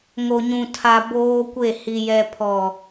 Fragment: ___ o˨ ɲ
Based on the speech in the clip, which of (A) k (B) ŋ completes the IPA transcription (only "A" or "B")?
B